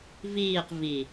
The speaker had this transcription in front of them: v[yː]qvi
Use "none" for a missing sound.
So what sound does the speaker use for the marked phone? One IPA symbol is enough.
iː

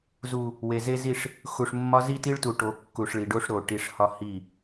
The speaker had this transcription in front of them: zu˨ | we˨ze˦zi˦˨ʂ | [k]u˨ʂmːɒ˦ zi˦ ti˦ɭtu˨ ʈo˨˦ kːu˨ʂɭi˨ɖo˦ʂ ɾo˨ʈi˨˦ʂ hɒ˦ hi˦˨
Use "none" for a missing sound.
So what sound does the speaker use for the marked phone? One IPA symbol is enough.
x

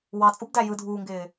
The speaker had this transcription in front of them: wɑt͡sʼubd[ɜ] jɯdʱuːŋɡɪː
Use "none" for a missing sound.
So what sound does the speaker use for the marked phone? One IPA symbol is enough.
æ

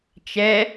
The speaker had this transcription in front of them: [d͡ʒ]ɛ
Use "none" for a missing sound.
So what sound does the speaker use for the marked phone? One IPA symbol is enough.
t͡ʃ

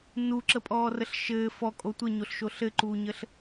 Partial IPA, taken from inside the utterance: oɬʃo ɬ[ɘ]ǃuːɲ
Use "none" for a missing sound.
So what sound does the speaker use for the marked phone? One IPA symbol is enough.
ɘ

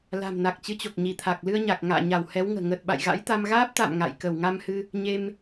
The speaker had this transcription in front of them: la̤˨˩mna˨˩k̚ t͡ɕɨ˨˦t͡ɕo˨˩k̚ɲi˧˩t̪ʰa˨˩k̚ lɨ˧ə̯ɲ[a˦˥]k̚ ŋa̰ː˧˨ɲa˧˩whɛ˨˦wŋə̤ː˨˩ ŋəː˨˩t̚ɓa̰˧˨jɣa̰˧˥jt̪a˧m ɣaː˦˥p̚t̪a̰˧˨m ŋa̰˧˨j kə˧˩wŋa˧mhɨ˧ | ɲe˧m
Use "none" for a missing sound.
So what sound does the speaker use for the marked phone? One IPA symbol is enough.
a˨˩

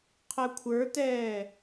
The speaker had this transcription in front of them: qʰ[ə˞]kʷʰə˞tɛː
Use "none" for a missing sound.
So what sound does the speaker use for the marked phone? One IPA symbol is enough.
ɜ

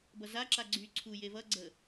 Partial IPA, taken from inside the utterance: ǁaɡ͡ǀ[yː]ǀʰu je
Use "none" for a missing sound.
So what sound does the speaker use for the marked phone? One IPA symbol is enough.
yː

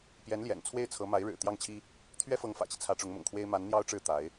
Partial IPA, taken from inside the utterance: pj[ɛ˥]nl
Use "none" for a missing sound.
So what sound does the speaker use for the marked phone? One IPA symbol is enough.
ɛ˧˥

